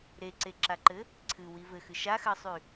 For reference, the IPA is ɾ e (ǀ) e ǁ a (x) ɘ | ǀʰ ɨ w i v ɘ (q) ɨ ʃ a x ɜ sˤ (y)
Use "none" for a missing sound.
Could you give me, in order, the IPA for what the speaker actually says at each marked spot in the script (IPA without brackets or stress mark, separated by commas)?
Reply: ǀ, ǃ, x, y